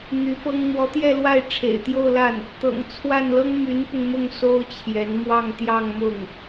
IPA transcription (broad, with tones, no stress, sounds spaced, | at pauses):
n̪ y˧˥ p ɤ˥ ŋ n̪ w ɔ˧˥ t̪ j ɛ˥˧ l w a˥˩ ɪ̯ ʈ͡ʂʰ ḛ˨˩ ɪ̯ t̪ j o˥˧ ʊ̯ l a˥˩ n | t̪ ɤ̰˨˩ ŋ t͡sʰ w a˥˩ n l ɤ˥ ŋ m y˧˥ n p ʊ˧ ŋ m ʊ˥˩ ŋ s o˥ ʊ̯ t͡ɕʰ j ɛ˧˥ n m w ɑ˥˧ ŋ t̪ j ɑ˥˧ ŋ m ʊ˥˩ ŋ